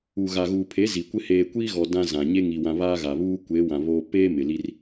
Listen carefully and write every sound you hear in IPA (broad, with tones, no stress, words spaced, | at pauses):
u˨ɣa˨ɣuː˨pʰe˨˦ zi˨kʷɪ˦ heː˨kʷi˦ɣɔ˨ dã˦zã˨ɲe˦ ŋi˨wã˨ βaː˦ɣa˨βuː˦ kʷe˨˦ wã˨βoː˦ peː˦ mɪ˨li˦r